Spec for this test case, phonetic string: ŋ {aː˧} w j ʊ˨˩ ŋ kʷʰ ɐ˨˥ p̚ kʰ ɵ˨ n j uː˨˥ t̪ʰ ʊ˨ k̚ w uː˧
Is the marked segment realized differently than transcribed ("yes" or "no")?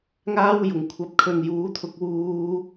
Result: yes